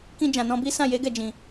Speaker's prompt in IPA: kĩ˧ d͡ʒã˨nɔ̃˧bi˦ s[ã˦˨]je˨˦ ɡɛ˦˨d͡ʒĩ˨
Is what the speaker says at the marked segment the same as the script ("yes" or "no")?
yes